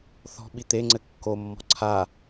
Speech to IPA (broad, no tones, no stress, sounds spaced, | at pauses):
θ ɔ̤ ɓ i t̪ e ŋ͡ǀ ɘ kː o mː ɔ̤ ǀʰ a